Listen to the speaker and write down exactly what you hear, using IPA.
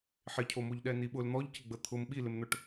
ħɪcʰomoʎɗɛ niɓʊl n̪ɔʎcɪɡ͡bə t̪ʰʊm ɓilɪmn̪ɵʈ

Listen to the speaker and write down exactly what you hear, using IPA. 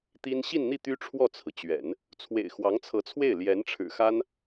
t̪i˥n ɕi˥˧nn̪i˥˩ t̪y˥ʈ͡ʂʰwɔ˥˩t͡sʰɹ̩˩t͡ɕɥɛ̰˨˩˦n | t͡sʰwḛ˨˩ɪ̯xwɑ˧˥ŋt͡sʰɤ˧˥t͡sʰwe˥˩ɪ̯ ljɛ˧˥nʈ͡ʂʰɻ̩˨˩xa˥n

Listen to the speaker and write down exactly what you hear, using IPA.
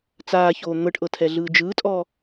t͡saːçoː n̪ɤʈʔɤtʰɛɮɯː d͡ʒɯːtʼɔ

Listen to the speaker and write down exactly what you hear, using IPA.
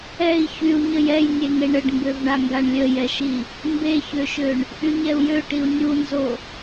ɛi̯ çyu̯ɲəj ɛjnʲeŋe ɳəɖmbøvɳaŋɡaɳ lʲəjɛʃi | mbeçøʃøɳ | ʔyɲɛu̯jø ʈiu̯nʲunzo

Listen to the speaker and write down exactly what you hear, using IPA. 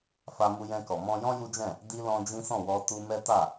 fa˧mu˧jɛ̃˧kɔ˨ mɔ̃˧jɔ̃˦ ju˦d͡ʒɛ̃˦˨ | di˧ lɔ̃˦ d͡ʒĩ˦sɔ̃˦˨wɔ˧ tu˧ mɛ˦ta˦˨

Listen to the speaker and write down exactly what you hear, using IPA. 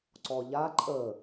ǀɔʎa ǃʼə

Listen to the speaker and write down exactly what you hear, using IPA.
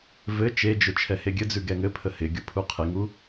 vɘ t͡ʃed͡ʒʊ t͡ʃʰɛheɡʲɘd͡zʉ ɡɛŋɘpʰə hɪ ɡʲʊpʰuqʰɪŋu

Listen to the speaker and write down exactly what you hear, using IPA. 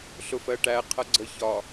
ɬʊfɜʈæ qʰʌɡ͡ǀə çɒ

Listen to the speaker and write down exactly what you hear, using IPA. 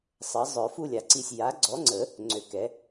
sˤə˩˥zˤœ˨˩˦fu˦˨ lʲa˨˩˦ǀi˦˨sʲ ja˩˥ɡ͡ǀɔ˩˥ŋ͡ǀə˨˩˦ | ŋ͡ǀø˩˥kɛ˩˥

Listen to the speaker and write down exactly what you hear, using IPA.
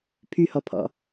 pʰyhɔpʰɔ̰

